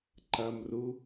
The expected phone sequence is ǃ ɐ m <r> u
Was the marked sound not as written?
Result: no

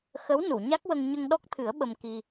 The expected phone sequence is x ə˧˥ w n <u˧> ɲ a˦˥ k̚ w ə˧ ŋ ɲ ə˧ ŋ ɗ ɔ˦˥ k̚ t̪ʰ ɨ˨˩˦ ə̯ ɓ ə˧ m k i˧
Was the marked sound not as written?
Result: yes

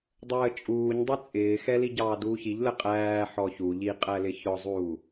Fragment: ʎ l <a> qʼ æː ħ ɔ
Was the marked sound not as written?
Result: yes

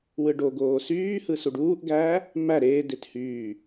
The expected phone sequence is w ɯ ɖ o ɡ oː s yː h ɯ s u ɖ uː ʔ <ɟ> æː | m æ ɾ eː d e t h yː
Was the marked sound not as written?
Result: yes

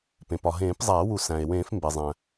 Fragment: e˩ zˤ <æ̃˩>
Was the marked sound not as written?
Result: no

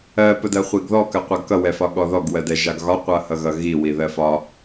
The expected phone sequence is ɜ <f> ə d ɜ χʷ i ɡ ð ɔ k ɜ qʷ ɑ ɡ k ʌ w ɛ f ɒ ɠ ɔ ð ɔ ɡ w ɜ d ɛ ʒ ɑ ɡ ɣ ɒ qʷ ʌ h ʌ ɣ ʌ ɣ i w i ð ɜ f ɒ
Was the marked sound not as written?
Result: yes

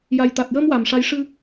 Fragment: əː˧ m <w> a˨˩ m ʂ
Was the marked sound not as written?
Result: no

